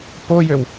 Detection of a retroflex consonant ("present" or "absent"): absent